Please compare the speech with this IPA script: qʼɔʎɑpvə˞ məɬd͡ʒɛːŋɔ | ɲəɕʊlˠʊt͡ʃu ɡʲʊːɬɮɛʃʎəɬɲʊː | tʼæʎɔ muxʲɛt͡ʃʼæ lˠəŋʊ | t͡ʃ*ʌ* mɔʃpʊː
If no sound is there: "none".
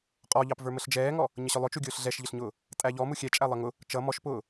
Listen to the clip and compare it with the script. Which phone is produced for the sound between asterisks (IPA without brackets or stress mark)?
ʌ